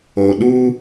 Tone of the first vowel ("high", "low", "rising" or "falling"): low